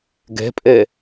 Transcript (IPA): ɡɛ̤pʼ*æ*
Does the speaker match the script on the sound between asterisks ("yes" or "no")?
no